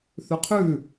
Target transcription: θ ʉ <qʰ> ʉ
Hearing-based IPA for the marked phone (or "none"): qʰ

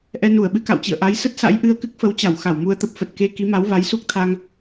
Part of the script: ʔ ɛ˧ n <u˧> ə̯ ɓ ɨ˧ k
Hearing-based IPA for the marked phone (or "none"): u˧˩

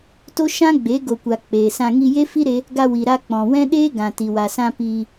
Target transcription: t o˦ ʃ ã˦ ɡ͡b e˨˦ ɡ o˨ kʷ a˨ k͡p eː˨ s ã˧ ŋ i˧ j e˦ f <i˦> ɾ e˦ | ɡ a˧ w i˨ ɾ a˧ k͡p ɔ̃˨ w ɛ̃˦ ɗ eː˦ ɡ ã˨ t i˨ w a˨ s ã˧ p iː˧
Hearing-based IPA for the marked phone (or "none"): i˦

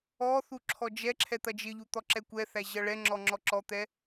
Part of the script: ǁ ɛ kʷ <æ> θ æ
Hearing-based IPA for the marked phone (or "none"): ɛ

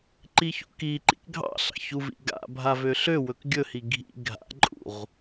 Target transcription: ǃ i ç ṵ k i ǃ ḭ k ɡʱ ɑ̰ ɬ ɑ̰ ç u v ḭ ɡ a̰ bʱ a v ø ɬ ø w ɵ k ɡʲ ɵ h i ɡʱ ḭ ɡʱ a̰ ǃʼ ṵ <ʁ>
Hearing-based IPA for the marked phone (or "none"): ʁ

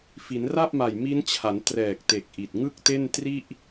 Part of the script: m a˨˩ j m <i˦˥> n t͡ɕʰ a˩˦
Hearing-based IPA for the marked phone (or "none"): i˦˥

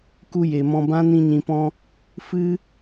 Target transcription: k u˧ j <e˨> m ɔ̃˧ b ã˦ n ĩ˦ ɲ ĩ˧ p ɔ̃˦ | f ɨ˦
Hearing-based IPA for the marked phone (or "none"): e˨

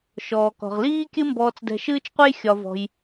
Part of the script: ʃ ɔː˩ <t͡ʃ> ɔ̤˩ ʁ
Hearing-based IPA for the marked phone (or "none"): k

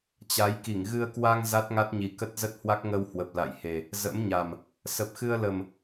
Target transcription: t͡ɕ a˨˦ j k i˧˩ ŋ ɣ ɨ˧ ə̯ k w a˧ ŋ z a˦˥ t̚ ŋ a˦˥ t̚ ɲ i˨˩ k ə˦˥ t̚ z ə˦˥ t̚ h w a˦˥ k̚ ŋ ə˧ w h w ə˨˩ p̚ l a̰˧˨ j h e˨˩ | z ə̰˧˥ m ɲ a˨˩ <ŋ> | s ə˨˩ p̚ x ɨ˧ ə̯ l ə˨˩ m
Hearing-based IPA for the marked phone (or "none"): m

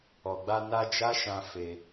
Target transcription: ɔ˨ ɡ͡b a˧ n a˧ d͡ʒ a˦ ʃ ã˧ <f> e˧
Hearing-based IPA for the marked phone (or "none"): f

